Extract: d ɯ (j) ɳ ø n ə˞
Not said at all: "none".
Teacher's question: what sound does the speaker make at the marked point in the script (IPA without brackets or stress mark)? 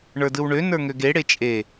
w